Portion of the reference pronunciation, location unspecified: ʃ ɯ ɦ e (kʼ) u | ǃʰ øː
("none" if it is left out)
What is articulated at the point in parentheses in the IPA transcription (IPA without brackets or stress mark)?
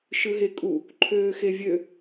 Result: kʼ